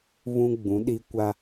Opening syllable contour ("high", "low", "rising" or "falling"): high